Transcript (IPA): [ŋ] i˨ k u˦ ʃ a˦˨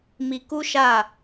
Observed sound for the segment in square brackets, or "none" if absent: m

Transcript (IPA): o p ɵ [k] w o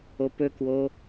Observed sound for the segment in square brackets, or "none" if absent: k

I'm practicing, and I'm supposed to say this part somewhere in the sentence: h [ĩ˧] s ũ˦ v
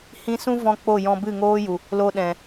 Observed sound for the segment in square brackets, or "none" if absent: ĩ˧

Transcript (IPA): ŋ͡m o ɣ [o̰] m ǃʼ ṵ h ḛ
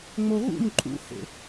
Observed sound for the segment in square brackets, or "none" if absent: ṵ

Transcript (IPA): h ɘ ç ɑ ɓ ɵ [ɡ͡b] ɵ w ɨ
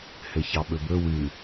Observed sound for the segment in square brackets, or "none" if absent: b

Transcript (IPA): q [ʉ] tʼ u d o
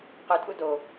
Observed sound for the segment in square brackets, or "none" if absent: ʉ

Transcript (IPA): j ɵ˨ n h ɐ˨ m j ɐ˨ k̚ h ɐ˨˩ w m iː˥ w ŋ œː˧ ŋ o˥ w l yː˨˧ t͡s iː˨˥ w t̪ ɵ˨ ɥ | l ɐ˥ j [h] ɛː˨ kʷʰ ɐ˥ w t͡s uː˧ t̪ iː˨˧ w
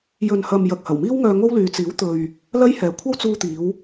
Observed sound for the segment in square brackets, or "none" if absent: h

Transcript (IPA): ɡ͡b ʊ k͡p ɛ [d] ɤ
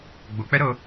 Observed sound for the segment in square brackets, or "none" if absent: ɾ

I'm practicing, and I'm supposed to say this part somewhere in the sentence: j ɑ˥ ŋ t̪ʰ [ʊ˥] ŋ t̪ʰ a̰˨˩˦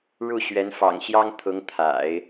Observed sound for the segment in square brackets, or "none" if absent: ʊ˧˥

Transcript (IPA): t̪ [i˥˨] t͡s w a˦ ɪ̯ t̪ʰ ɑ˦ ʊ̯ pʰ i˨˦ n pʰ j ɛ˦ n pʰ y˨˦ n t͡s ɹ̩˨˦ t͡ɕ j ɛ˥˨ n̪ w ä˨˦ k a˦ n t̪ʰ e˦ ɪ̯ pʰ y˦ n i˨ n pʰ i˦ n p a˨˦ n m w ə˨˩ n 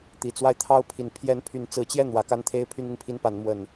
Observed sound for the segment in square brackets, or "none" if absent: i˨˩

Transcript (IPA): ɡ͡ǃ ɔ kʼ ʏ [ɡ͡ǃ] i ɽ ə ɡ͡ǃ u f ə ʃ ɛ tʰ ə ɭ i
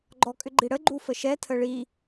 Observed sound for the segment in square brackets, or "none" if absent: ɡ͡ǃ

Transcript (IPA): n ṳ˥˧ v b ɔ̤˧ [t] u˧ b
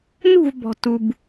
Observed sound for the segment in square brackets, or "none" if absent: t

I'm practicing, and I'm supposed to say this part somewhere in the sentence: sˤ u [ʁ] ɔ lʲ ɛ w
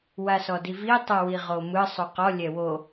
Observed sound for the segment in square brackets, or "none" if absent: q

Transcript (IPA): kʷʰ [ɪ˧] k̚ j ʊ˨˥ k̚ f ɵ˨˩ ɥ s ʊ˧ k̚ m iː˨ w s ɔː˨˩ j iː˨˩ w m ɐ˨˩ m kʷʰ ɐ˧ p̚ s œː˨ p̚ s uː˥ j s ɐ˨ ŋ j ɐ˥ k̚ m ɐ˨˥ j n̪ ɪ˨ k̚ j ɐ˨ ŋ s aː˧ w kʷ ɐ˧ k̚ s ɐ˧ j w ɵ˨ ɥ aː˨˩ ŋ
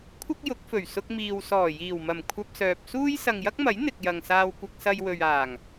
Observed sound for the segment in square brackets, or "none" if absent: ɪ˥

